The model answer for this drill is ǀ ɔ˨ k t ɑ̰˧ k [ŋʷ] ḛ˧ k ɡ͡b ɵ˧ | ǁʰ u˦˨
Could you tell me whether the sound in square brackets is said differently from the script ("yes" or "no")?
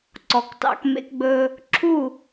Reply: yes